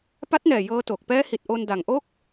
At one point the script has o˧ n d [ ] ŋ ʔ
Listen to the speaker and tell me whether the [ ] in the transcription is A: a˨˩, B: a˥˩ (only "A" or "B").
A